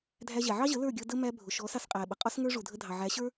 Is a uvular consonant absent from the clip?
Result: no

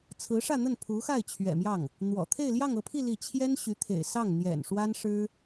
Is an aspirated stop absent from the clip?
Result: no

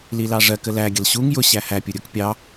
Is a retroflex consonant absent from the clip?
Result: no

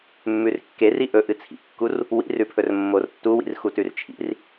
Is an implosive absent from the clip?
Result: yes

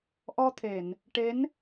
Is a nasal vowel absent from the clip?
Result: yes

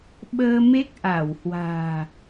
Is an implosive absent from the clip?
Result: no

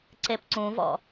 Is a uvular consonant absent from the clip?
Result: yes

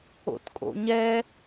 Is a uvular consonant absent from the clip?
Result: yes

